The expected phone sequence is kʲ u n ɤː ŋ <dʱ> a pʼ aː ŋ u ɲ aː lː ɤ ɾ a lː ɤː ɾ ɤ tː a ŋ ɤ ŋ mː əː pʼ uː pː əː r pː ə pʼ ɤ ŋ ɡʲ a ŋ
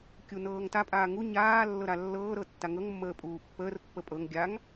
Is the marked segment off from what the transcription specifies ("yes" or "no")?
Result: yes